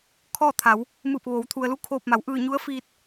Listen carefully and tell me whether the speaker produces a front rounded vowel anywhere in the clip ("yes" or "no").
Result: no